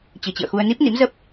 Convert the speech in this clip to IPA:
t͡ɕ ɨ˨˩ t͡ɕ ɨ̰˧˨ ə̯ x u˧ ə̯ n i˦˥ p̚ n ḭ˧˥ m z ə˦˥ p̚

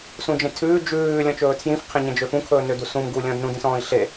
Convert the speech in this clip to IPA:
s ũ d͡ʒ ẽ tʰ ʉː d͡ʒ ʉː lʲ ɔ̃ t͡ʃ ɵː tʰ j ĩ f qʰ ẽ ɲ ẽ d͡ʒ ø f ũ kʰ ɵː n ø d u s ũ m ɡ u lʲ ɔ̃ d n ũ d ĩ s ɔ̃ː i̯ ɬ e

